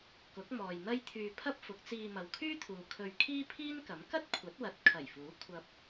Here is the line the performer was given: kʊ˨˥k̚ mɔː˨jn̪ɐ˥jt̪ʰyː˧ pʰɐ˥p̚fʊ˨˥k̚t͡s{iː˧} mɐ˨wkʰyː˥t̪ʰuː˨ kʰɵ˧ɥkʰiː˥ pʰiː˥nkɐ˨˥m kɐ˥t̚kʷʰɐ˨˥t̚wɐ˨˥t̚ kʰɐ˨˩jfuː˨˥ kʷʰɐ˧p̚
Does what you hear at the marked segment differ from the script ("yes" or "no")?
no